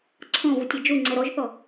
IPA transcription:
ǀʰ ɔ̃ v u tʲ ɛ d͡ʒ u ŋ͡ǀ ɛ ɾ ɔ ʒ θ ɔ

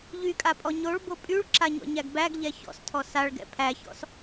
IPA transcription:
ʎ y kʼ a pʼ ɔ ɲ o ɭ b o pʼ y ɭ ǁ a ɲ ɔ̰ ɲ æ ɡ b æ ɡ ʎ ɛ ç ɔ̰ s tʰ ɔ s a ɭ ɡ ɛ̰ pʰ æ ç ɔ̰ s

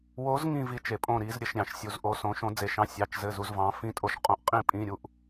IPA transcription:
w o˧˥ z ŋ ĩ˥˧ v i˧ t͡ʃ e˧ pʼ õ˥˧ ɾ i˧˥ z ɾʲ ɘ˧˥˧ ʃ ɾʲ ɑ̃˧ ʃ sʲ u˧ z ʔ o˧˥ s õ˧˥ ʃ õ˧˥ d͡z e˧ ʃ ɑ̃˧˥˧ sʲ ɑ˧˥˧ t͡ʃ z ɘ˧˥˧ z u˧˥ z v ɑ̃˧˥ f ĩ˧˥ tʼ o˧ ʃ qʼ õ˧˥ ʔ qʼ ĩ˥˧ pʼ ĩ˧˥˧ ɾʲ u˧˥˧ ʔ

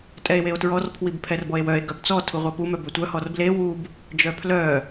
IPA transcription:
tʼ ɛ e̯ w e o̯ t ɹ ɔ r pʰ w i b pʰ ɛ r b ɔ e̯ w œ e̯ ɡ œ b t͡s ɔ tʰ u ʁʷ ɛ p u m œ b ø tʷ œ h ɔ r b l e w u b | d͡ʒ œ pʰ l œ

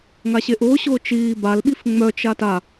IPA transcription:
ŋ a ɕ e ʔ ʊː ɕ ʊː t͡ʃ iː b a l ɓ i f ŋ͡m œ t͡ʃ a t a

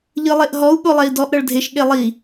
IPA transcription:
ʎ ɯ lˠ e ʔ ɦ ɔ u̯ ɠ o lˠ ɛ i̯ d ɔ ʔ ɾ ɤ ɭ dʱ e ʃ ɠ e lˠ i

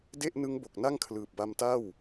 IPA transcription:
d e˥˩ ʔ n ɯ˦˥ ŋ b o˨˩ k̚ n a˥˩ ŋ kʰ l ɯː˨˩ p̚ b a˧ m t a˥˩ w

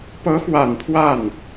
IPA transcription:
p ɤ˧˥ x w a˨˩ n pʰ w a˥˩ n

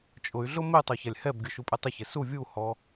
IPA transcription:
t͡ʃʼ ʊ y̯ ɮ ʊ m ɪ tˤ o ç a lʲ h ɛ b ɡʲ o ʃ u pʼ ɛ tˤ ɪ ç ɛ s u vʲ u h ɔ

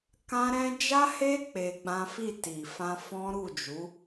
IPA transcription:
k ã˦ ɾ ɛ̃˦ d͡ʒ a˦ h e˦ k͡p e˧ ɡ͡b ã˦ f i˦˨ t i˨ f ã˧ f ɔ̃˦ ɾ u˦˨ d͡ʒ u˨˦

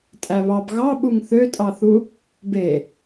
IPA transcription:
tʼ æ β ɑ b ɣ ɑ ɓ u ŋ θ ø tʼ ɑ θ u | b e

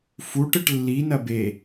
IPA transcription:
f u ʈ ɘ ʈ lː i n ɐ b e

